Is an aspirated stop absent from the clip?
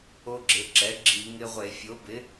yes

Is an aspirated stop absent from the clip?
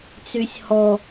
yes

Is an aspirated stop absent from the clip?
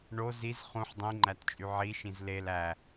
yes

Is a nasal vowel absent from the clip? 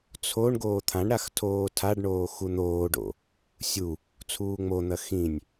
no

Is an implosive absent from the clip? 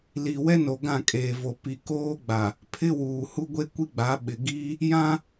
no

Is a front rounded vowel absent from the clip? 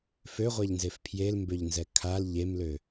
no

